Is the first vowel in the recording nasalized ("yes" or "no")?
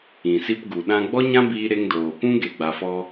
yes